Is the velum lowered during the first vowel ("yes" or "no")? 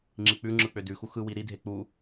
no